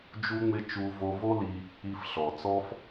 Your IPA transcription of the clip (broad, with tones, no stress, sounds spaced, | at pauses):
d͡ʒ u˥ ŋ͡m ɪ˥ t͡ʃ u˧ v o˧ v o˥ l i˧ | i˧ f ɬ ɔ˩ t͡s ɔ˥ f